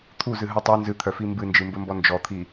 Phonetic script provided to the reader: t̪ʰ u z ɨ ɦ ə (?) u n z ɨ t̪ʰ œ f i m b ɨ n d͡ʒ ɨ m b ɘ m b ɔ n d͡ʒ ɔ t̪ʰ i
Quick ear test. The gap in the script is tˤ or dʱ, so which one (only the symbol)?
tˤ